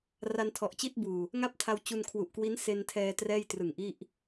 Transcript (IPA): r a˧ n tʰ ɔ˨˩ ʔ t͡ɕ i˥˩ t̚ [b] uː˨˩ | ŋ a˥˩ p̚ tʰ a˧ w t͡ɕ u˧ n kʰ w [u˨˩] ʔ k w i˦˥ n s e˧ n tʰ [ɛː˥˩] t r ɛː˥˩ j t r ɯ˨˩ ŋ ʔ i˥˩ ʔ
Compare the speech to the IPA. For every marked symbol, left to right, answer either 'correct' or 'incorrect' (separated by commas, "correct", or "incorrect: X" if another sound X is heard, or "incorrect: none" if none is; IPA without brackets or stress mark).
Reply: correct, correct, incorrect: ɛː˧